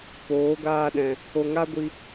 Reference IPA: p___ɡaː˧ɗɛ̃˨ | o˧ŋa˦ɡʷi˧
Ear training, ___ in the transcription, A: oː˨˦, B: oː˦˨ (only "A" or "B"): A